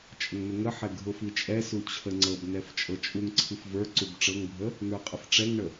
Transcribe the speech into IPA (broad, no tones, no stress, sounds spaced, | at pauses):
t͡ʃʼ ə ŋ n ʊ ŋ ə ħ ɛ ɡʱ ʊ f i t͡ʃʼ ɛ s u t͡ɕʰ ə ŋ͡ǀ ɤ b n ɛ f t͡ʃʼ ɤ t͡ʃʼ u ŋ ǀʰ i f v ə˞ ǀ u b ʈ͡ʂ ɤ ŋ bʱ ə | n ə˞ qʼ ə f ʈ͡ʂ ɛ ŋ ɳ ə